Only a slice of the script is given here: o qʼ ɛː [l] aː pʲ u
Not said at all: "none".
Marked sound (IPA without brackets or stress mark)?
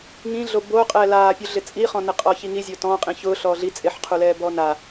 l